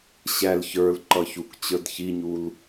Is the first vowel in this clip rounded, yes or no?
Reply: no